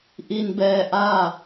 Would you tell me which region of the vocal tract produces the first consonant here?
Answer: throat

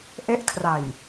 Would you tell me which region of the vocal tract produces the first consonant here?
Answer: throat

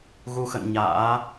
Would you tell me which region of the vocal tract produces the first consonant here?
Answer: velum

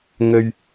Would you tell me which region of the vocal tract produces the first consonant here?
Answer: velum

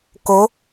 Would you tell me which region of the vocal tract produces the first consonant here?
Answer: velum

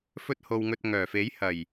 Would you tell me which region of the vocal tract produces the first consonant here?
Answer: lips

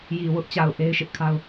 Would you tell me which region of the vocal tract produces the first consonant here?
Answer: palate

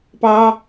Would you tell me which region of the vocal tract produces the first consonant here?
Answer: lips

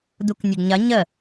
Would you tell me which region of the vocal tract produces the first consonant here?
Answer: tongue tip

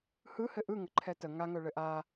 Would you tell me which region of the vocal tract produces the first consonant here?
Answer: throat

